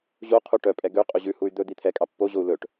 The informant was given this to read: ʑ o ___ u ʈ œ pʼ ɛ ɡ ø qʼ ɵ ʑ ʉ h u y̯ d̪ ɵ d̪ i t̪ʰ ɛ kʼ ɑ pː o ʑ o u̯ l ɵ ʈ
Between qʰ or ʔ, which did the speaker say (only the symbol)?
qʰ